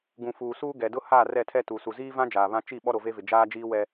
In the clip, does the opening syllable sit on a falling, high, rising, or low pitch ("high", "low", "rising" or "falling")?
low